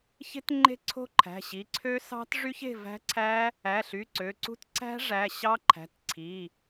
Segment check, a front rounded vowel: present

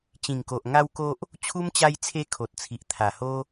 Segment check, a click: absent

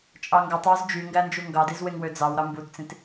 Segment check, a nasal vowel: present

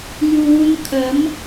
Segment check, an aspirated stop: present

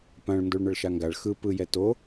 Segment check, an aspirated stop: absent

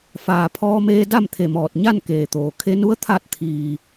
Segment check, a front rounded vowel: absent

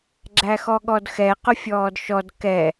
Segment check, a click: present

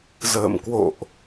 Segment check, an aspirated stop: absent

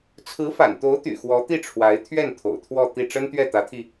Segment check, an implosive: absent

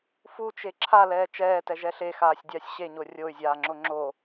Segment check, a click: present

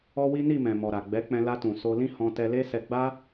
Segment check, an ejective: absent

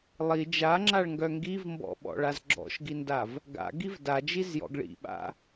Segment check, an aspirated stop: absent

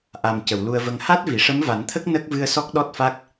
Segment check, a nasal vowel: absent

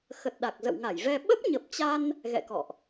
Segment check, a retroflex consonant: absent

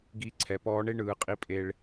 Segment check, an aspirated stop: present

